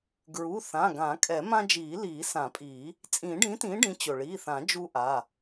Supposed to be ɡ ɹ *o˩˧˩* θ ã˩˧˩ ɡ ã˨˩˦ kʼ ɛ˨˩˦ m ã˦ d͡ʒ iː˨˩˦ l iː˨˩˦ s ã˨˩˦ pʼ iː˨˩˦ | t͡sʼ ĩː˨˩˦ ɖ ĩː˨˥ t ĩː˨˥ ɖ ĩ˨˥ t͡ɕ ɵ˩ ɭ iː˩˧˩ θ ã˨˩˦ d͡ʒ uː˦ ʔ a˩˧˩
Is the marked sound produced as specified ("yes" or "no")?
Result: no